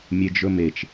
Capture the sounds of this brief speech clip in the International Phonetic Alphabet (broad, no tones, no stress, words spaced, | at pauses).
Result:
mʲed͡ʒɵmet͡ʃ